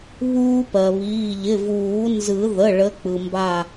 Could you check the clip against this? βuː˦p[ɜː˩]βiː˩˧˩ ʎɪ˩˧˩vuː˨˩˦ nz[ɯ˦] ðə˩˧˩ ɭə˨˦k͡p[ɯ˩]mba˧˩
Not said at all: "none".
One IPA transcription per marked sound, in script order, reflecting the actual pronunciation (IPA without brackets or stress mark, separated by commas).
ɜ˩, ɯ˨˩˦, ɯ˩